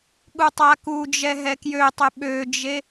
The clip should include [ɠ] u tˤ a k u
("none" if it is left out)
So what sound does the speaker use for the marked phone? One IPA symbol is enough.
ɠ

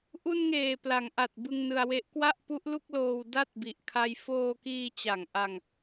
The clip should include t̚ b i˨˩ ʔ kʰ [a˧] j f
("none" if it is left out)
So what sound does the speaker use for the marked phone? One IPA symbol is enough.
a˧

